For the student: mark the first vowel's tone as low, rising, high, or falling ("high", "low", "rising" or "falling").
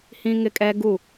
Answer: high